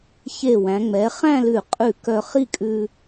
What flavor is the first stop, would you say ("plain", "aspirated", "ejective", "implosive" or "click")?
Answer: ejective